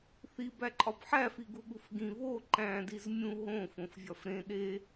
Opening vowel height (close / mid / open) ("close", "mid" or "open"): close